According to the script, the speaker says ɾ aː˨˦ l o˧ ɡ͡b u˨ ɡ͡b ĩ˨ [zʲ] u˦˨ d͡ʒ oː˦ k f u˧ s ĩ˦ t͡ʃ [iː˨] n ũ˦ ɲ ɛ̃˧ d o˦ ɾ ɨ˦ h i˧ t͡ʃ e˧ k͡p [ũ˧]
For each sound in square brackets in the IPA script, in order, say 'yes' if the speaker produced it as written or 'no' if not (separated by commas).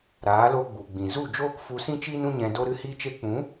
no, no, no